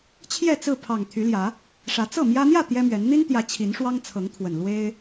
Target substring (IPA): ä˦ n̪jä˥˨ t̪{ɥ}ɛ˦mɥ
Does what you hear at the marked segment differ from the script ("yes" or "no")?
yes